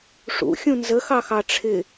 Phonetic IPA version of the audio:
ʂ ṵ xʲ ũ n z ə x ɑ x ɑ ʈ͡ʂʰ ɪ

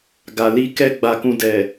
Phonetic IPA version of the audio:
ɡ a˨ l i˧ k ɛ˦ ɡ͡b a˧ k ũ˧ d ɛ˨

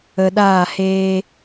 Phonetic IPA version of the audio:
ə˨ ɗ aː˦˨ h eː˦

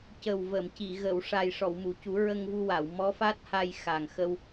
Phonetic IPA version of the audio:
c ə˨˩ w v ə˨˩˨ m c i˨˩˨ ɣ ə˨˩˨ w ʂ a˨˩ j ʂ ɔ˨˩˨ w m u˨˩˨ c u˨˩˦ ɹ ə˧ ŋ v u˧ w a˨˩˨ w m ɔ˧˥ f a˦˥ t̚ h a˧ j x a˨˩ ŋ x ə˧ w

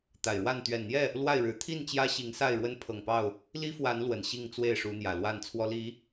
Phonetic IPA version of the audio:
t̪ a˨˩ ɪ̯ ɻ w a˥˨ n t̪ ɥ ɛ˨˩ n n̪ j ɛ˥˨ | l w a˥˨ ɪ̯ ɻ ɻ̩˨˦ t̪ʰ i˥˨ n t͡ɕ j ä˦ ɕ i˨˦ ŋ s a˥˨ ɪ̯ ɻ w ə˦ n pʰ ɤ˨˩ ŋ p ɑ˥˨ ʊ̯ | l i˦ f w a˨˦ n l w ə˨˩ n ɕ i˥˨ ŋ t͡s w e˥˨ ɪ̯ ʂ u˨˦ n̪ j ä˨˩ l w a˥˨ n t͡sʰ w ɔ˦ l i˨˦

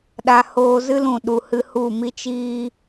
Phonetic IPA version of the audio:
ɗ a˧ h oː˧ z ɨ˦ l ũ˨ ɗ u˨ h ɨ˧ h u˦˨ m i˦ t͡ʃ iː˦

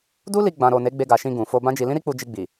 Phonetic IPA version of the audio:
d u˦ l i˧ ɡ͡b ã˨ ɾ o˨ n e˨˦ ɡ͡b e˧ ɡ a˨ ʃ ĩ˧ ɡ ũ˨ f o˧ b ã˦ d͡ʒ i˧ l ĩ˦ ɾ i˦ k͡p u˧ d͡ʒ i˧ ɡ͡b i˨

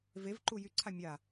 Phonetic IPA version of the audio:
v e v ǃ u j y ǀʰ a mʲ a

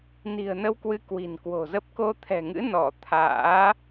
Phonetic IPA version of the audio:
n i̤˨˩ ə̯ n ə˧ w k w ɨ˨˦ k w i̤˨˩ n k w o̤˨˩ z ə˦˥ p̚ k o˧ t̪ʰ ɛ̤˨˩ ŋ ɨ̰˧˥ n ɔ˧˩ t̪ʰ a̰ː˧˥

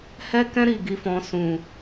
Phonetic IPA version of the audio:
h ɛ˦ k ɛ̃˦ ɾ i˦˨ ɡ i˨˦ f ɔ̃˧ s ũ˨

